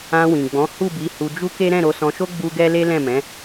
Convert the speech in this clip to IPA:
ã˧wĩ˨ɡ͡bɔ̃˨˦ hu˦˨bi˨˦ hu˧d͡ʒu˦ke˦ ɾɛ̃˦˨ɾo˧sɔ̃˧ʃo˦ ɡ͡bu˦ ɡɛ˦le˦lɛ̃˦˨mɛ̃˨˦

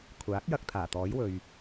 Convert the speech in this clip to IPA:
kʷʰaː˨˥k̚jɐ˧k̚ t̪ʰaː˨˩t̪ɔː˨˥jwɵ˨ɥ

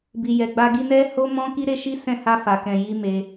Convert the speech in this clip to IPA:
bi˧jɛ˧ɡ͡ba˦ ɡi˧ nɛ˦ ho˦mɔ̃˦ ki˦ɾe˦ ʃi˦sɛ̃˦˨ ha˧ fa˨ kɛ̃˨ji˧ me˧

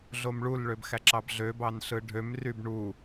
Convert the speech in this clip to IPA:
ɮomɭulɭøb xæǁɑbɮøbɑn ɬɯɖʱømryb ɳu

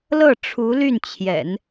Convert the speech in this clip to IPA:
lɤ˥˩ʈ͡ʂʰu˧˥ ly˥˩nt͡ɕʰjɛ̰˨˩˦n

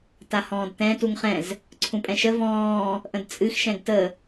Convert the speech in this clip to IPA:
tahɔ̃ːdtɛ̃ tuŋχɛ̃z | ǀʰũpʼɛ̃ʃə vɔ̃ː | ʔə̃dt͡sʼɨx ʃɛ̃ɡtə

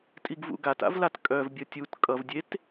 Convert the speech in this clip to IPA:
tʼiɡvṵɡata̰v latkʼœvbʲʌ tʲut kʼʌvdʲet

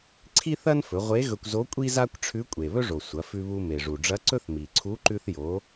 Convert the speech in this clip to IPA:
ǀʰi˥θɐ˥n fɵ˩˧ʁʷe˧˥ɣɵ˧kʷzo˧˥ kʷʼi˥za˥kʷ ʈ͡ʂʰʉ˧˥kʷʼe˩βɵ˥ʐo˩ sʷɐ˩˧fʉ˧βu˧ me˩ʐu˩ɖ͡ʐɐ˧˥ ǀɵ˥θmi˩ǀʰu˧˥ ǃʉ˧θjo˩˧

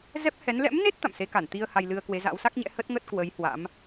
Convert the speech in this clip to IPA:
zɛ˦˥p̚hɛ˨˦n lɛ̰˧˥mne˦˥t̚ t̪a̰˧˨mse˨˦ka˧˩n t̪i˧ə̯ ha˧jlɨ˧ə̯kwe˨˦za̰˧˥w sa˦˥k̚ɲɛ̰˧˥ hə˦˥t̚ŋə˦˥t̚ kwə˨˦jhwa̰˧˥m

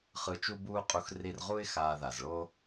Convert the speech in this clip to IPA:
χɯ˧t͡ʃu˦buː˦qʼu˧x ri˧rʁu˦ɪ̯ xaː˧ða˨z ɭo˦

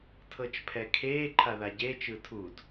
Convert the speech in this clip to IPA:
tʰɤt͡ʃpʰɛkʰeː ǃʰaðaɟeːt͡ʃ ɯtʰud

